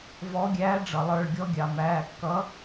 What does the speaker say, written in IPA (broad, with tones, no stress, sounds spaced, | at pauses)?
v ɔ˨˥ ɡʲ æː˨˥ ɖ͡ʐ ʌ˩ lˠ ə˞˩˧˩ ɭ ɡʲ ɔ˧ ɡʲ ɑ˩ m æː˩˧˩ kː ʌ˨˥